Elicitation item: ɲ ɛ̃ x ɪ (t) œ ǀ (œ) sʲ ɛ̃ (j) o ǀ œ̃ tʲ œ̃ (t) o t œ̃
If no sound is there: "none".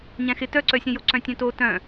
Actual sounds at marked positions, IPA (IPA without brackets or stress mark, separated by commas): t, œ, j, t